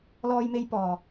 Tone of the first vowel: high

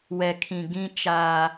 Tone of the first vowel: low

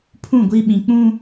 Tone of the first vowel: falling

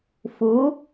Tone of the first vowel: rising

